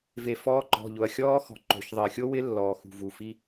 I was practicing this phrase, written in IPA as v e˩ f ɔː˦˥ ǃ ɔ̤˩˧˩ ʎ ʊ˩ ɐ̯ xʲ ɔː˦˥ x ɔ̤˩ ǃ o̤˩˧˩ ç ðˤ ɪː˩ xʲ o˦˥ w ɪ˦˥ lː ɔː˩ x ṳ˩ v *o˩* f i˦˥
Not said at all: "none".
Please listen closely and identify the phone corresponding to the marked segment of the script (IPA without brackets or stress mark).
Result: u˩